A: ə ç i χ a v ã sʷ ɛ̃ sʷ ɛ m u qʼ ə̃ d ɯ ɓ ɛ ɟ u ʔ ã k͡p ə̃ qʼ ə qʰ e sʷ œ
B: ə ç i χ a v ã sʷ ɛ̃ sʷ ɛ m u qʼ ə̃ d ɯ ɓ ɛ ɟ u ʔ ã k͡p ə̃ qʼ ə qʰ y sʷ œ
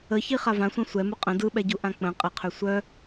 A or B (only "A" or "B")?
B